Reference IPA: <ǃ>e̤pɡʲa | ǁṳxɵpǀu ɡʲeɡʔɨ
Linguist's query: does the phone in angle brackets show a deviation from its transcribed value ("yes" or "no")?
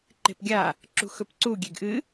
no